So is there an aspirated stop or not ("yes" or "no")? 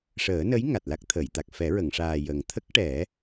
yes